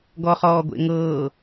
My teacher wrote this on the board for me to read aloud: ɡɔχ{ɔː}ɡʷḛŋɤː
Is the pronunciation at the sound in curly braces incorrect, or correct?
correct